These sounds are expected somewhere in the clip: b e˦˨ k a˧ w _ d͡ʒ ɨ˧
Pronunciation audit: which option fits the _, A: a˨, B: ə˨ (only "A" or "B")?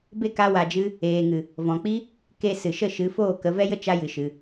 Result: A